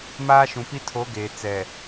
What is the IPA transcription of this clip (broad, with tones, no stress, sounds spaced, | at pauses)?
m aː˦ ʃ ũ˨ p i˦ tʰ o˨˦ ɡ eː˨ t͡s ɛ˨